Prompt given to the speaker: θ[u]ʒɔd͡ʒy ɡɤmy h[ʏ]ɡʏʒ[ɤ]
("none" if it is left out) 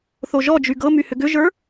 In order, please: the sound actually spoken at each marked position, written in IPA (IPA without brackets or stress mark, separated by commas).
o, ʏ, ə˞